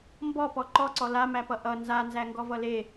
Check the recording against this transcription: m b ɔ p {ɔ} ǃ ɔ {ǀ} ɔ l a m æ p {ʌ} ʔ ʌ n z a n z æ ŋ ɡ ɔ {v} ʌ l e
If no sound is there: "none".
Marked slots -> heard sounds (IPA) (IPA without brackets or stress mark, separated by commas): ɔ, ǀ, ʌ, v